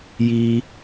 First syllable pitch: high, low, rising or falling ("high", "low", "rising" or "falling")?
low